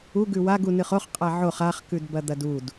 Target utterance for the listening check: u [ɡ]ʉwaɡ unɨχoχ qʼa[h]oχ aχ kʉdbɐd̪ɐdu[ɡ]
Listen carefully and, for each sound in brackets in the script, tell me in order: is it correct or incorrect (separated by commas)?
correct, incorrect, incorrect